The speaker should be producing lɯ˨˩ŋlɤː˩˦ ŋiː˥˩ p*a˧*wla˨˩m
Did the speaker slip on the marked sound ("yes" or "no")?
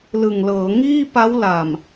yes